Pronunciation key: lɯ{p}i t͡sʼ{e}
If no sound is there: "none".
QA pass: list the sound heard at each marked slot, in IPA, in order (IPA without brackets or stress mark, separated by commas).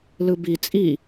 b, i